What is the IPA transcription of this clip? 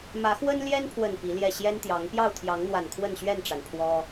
mä˨˦xwə˦nljɛ˦npʰwə˨˩n pi˨˦ljɛ˥˨ ɕjɛ˦nt̪jɑ˨˦ŋ pjɑ˥˨ʊ̯t̪ʰjɑ˨˦ŋn̪wa˨˩n kʰwə˥˨nɕɥɛ˥˨nʈ͡ʂa˩npʰwɔ˦

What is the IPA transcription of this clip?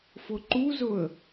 fʊǃuzʊə̯

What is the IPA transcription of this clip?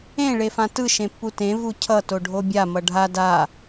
ẽ ɭefãtɯ ʃẽpːutẽ vucʰʌ toɖʱobʲa mʌɖʱa da

